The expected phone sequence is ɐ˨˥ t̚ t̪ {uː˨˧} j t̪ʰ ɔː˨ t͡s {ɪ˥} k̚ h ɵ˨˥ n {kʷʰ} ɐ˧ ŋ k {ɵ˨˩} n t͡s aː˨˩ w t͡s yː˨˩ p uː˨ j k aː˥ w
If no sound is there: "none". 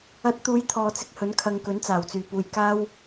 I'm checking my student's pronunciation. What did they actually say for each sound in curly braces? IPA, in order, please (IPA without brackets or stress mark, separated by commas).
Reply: uː˨˧, ɪ˧, kʰ, ɵ˨˥